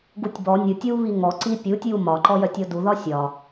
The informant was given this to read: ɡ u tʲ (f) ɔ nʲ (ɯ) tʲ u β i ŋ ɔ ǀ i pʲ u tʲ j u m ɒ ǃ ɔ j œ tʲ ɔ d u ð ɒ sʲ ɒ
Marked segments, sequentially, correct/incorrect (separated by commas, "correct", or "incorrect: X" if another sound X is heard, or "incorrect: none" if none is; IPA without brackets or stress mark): incorrect: b, correct